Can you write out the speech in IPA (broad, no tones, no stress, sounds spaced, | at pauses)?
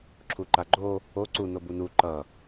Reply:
ǁʰ u ǃ a ɡ͡ǃ o | o ǀ u n o b u n u ǃ ʌ